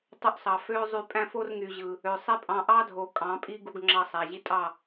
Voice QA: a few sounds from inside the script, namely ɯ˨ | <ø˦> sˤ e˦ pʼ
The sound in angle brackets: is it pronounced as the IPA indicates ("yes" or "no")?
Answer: no